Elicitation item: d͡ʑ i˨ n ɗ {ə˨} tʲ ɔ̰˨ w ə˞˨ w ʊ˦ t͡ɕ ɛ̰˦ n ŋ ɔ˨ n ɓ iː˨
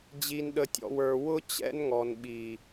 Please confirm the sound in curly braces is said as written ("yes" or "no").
yes